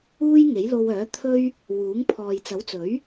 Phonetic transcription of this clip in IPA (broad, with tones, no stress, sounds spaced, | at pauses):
uː˥ j ŋ e˨˥ j l o˧ w œː˨˥ t̪ʰ ɵ˥ ɥ | w uː˨˥ ŋ pʰ ɔː˨ j t͡s ɐ˨˥ w t͡s ɵ˨˥ ɥ